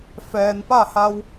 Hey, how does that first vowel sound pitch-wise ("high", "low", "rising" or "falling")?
low